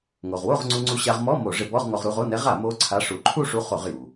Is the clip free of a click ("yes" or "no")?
no